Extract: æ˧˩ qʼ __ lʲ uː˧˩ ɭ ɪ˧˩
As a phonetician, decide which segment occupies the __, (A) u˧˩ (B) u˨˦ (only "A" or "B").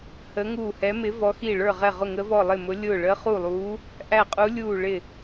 B